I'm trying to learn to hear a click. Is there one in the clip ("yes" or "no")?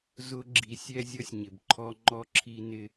yes